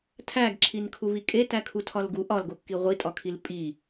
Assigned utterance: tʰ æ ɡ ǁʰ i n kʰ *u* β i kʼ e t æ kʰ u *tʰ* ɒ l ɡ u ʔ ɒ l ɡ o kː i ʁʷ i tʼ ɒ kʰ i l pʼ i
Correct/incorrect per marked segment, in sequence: correct, correct

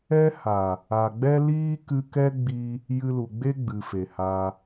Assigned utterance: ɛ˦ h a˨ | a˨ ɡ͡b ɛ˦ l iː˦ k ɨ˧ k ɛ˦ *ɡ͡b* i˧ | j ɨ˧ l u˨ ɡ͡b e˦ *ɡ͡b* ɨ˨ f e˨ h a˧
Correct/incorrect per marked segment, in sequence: correct, correct

